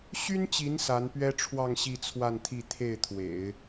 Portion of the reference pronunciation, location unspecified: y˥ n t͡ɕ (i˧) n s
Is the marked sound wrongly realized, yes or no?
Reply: yes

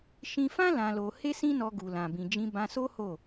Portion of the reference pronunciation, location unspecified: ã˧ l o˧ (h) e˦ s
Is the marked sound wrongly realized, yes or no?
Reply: no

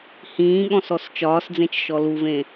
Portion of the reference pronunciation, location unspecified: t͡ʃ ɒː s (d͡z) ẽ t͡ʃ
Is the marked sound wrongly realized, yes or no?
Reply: no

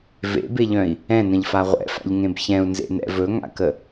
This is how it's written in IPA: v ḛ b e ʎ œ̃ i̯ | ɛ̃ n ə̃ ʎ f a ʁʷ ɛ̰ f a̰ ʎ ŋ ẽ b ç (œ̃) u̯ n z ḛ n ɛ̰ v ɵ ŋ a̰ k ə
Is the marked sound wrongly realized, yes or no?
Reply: yes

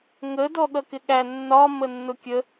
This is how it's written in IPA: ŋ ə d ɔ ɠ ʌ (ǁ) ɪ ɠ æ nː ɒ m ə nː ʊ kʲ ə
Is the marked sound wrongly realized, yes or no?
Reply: yes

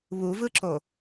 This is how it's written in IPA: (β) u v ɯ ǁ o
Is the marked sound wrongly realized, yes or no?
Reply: no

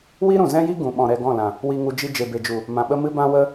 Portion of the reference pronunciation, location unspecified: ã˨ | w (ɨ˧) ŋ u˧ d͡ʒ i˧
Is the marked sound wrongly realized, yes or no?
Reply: yes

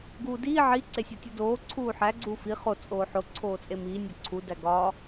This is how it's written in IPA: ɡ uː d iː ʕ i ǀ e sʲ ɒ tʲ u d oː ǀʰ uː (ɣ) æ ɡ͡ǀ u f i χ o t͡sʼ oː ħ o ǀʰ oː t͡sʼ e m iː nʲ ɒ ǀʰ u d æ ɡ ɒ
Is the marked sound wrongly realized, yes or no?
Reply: yes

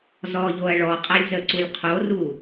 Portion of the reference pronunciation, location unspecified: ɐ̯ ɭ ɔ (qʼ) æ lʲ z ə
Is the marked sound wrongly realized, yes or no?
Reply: no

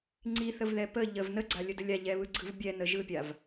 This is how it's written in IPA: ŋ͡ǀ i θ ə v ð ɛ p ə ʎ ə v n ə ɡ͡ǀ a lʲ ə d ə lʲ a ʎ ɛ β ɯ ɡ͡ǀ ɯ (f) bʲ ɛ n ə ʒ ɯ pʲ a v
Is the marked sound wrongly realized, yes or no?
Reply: yes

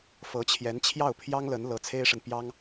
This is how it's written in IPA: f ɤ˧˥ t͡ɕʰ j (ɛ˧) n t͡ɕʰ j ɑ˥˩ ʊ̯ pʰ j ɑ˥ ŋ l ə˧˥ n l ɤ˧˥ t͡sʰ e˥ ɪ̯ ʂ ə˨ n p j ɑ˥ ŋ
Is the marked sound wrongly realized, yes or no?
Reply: yes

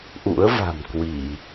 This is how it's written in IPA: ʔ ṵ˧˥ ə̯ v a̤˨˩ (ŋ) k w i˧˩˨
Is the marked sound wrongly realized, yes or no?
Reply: yes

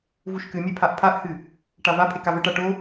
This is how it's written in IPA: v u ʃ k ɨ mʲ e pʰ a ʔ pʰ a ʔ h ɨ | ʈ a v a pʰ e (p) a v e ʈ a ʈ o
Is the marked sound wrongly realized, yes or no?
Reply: yes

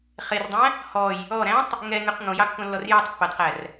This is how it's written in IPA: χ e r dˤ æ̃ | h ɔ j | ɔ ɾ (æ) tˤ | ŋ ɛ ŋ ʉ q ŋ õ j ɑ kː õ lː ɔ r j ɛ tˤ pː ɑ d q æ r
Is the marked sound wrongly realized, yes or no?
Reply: yes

